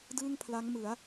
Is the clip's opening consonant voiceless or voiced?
voiced